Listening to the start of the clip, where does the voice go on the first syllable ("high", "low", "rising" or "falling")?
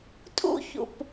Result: high